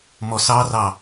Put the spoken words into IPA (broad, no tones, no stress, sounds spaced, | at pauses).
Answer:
m ɔ s ɑ r ɑ